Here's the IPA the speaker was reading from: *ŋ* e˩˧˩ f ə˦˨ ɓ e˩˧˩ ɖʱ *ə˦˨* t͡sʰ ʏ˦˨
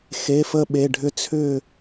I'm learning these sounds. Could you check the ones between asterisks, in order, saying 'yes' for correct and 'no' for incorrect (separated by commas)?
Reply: no, no